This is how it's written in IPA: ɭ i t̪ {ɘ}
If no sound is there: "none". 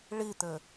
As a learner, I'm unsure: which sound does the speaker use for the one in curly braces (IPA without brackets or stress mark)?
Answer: ɘ